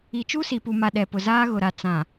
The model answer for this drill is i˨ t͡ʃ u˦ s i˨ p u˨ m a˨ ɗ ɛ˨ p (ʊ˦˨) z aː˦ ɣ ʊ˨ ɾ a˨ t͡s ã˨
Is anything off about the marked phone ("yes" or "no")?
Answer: yes